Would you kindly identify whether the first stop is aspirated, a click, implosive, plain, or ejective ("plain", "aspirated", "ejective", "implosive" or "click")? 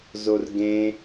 plain